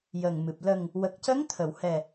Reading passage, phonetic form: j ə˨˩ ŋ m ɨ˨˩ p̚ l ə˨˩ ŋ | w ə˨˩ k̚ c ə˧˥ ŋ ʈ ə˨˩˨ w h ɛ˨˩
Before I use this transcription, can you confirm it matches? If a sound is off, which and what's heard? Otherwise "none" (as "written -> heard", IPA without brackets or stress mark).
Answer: ʈ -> t̪ʰ